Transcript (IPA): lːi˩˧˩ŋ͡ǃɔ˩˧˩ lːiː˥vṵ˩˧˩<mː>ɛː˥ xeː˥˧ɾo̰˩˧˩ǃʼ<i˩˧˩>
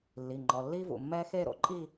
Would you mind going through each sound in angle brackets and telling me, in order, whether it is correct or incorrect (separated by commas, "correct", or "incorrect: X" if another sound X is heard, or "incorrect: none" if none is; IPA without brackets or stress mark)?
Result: correct, incorrect: i˥˧